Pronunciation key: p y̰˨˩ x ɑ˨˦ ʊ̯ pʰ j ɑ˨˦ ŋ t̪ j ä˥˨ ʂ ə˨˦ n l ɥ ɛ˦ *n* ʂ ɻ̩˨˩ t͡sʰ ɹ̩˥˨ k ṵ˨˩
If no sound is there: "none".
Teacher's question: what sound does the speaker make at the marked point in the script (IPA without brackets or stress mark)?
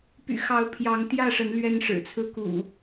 n